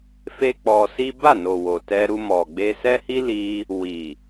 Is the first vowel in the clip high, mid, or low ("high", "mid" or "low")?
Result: mid